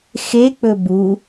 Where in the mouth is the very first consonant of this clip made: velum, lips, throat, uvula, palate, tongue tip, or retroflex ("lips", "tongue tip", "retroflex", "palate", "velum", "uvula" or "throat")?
velum